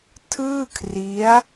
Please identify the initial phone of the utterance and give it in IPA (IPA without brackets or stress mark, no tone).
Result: tʰ